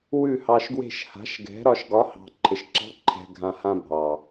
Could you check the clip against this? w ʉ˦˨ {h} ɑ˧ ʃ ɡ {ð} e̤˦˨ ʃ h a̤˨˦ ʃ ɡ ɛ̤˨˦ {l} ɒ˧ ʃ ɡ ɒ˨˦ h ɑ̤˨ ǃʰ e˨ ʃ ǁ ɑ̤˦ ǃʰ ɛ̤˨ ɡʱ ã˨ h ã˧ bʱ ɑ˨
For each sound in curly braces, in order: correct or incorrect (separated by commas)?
correct, incorrect, incorrect